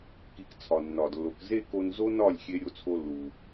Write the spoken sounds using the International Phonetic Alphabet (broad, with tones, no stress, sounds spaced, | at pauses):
k i˧ k t͡sʰ ɒ˨ nː ɒ˨ d lː o˨ k z e˦ k o˧ n z o˦ n ɒ˦˨ lʲ xʲ e˧ ɾʲ o˦ t͡sʰ o˦ lː u˨